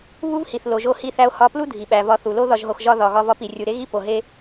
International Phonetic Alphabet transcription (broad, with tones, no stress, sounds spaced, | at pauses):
β u˥ v h i˩ θ l o˩ ʒ o˧ h i˧ θ æ˧ o̯ h ɒ˧ p l u˥ dʱ i˩ ɓ æ˩ v ɒ˧ θ u˩ l o˥ ð ɒ˧ ʒ ɦ o˧ x ʒ ɒ˥ ð ɒ˩ ɣ ɒ˧ v ɒ˧ p i˩ rʲ u˩ ɾ e˥ ɣ i˥ p o˩ ɦ e˧